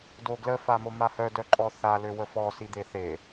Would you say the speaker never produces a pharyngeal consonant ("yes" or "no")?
yes